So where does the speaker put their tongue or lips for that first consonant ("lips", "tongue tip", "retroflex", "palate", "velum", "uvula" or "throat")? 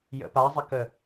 palate